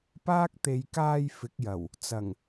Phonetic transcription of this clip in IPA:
p aː˥ k̚ t̪ e˨ j k aː˧ j f ɪ˨˥ k̚ j ɐ˨˩ w | t͡s ɐ˨˩ ŋ

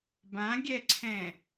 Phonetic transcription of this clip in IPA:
b ã ɡʲ ɛ ǀʰ ɛ̃

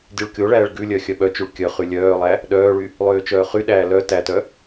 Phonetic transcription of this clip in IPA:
dʲ ʉ ɭ kʲ o ɭ æː ɭ ɡ ʉ lʲ œ xʲ œ ɓ œ t͡ʃ y ɭ kʲ œ χ y lʲ œː lˠ æ | ɗ œː ɭ y | lˠ øː t͡ʃ œː χ y ɗ æː l œ t æ t œ

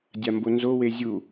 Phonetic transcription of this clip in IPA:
dʲ a m b o n z o w e zʲ u

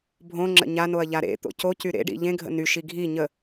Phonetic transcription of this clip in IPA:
bʱ õ ŋ͡ǁ ə̰ ɲ a n o ɐ̯ ʎ a ɾ ḛ t̪ o̰ c o c y ɾ ḛ ɖ ḭ ʎ ẽ ɡʱ ə̰ n y ʃ i ɡʱ i ɲ ə

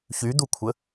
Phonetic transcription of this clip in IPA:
ç y d̪ u kʷʰ ə

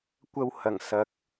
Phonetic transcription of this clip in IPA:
kʷ ɐ˧ w h ɐ˨˩ ŋ s ɐ˨ k̚

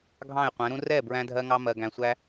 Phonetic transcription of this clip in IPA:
ɡʱ ɑ̃˦˨ ɪ̯ qʷ æ̃˨˦ ɾ ũ˦ r ɛ˦˨ b ɹ æ̃˧ dʱ ɜ˧ ŋ ɑ˧ m ɜ˨ ɡ æ̃˨ sʷ æ˧

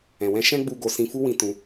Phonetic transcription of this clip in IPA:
ɛ̃˨ w ɛ̃˧ ʃ ɛ̃˦ ɡ͡b u˧ ɡ o˧ s ĩ˧ f u˦ w ĩ˧ t ũ˧

